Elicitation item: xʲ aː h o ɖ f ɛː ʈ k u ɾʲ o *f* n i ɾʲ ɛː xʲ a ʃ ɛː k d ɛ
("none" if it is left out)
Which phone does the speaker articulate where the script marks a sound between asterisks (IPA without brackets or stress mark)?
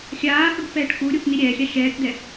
f